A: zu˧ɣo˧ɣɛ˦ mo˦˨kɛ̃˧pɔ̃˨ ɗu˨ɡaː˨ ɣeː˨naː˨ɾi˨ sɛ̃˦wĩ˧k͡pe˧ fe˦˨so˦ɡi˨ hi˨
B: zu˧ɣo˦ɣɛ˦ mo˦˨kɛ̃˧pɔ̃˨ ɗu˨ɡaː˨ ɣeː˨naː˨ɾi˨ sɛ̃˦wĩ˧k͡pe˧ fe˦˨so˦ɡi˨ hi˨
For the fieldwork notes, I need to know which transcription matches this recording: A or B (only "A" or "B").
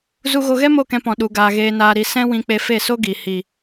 A